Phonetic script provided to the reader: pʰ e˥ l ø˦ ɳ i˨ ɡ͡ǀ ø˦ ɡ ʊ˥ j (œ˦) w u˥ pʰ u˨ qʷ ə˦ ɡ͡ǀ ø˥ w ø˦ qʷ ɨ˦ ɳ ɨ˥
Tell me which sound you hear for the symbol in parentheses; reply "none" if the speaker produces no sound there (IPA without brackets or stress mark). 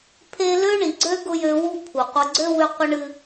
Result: ø˦